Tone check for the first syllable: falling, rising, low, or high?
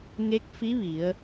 rising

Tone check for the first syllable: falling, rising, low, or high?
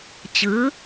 rising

